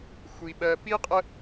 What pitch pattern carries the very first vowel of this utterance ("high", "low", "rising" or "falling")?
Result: low